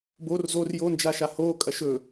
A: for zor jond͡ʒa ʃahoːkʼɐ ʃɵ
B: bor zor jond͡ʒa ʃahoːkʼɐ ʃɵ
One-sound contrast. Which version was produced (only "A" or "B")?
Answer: B